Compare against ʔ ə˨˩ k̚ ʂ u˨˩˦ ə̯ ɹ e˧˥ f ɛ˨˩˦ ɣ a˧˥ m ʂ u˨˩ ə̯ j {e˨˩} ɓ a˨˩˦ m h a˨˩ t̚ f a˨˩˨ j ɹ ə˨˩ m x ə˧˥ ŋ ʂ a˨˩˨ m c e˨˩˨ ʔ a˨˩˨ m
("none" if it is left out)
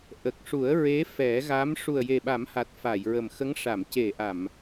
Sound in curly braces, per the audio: e˨˩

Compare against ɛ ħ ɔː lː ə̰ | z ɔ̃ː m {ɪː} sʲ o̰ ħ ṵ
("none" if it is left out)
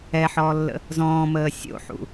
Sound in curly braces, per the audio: əː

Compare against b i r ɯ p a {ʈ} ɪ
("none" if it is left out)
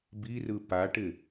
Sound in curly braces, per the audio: ʈ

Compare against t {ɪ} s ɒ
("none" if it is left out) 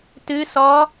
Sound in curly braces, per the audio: ɨ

